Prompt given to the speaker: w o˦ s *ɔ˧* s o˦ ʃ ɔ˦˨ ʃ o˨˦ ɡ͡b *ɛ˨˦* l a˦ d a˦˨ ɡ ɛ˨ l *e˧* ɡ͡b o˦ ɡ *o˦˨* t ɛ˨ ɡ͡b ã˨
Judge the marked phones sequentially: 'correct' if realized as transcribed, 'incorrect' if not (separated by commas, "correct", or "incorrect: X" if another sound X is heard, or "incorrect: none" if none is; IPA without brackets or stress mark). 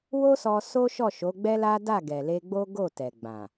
correct, incorrect: ɛ˦, correct, correct